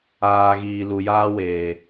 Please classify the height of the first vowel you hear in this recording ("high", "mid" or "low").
low